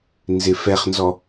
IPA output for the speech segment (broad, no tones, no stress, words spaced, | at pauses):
nzɪfɛχnzɔ